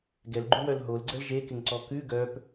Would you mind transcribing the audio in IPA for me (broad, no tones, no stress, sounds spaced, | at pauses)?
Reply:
ɡ ɛ l ɡ͡ǃ ʉ w œ l ɦ o l ɡ͡ǀ ə l ʒ e k ɪ ŋ ǀ ɔ k ʉ ɡ œ p